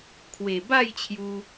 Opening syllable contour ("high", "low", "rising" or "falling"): low